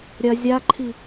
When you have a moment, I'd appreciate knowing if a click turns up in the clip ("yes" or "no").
yes